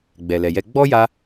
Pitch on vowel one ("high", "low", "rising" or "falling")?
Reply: low